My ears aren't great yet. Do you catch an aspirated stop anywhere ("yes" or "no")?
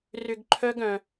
yes